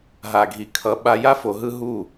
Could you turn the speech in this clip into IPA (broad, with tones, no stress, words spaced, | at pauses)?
ɦa˨ɡʱi˨kʰʌ˨˦ ɓa˧ja˦ fo˧ɦɯ˦ ɦu˦˨